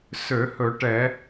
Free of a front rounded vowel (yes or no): no